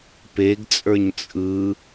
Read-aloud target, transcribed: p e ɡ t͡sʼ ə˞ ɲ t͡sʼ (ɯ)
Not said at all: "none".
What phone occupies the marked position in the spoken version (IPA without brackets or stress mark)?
ɯ